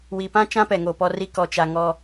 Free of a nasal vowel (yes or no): no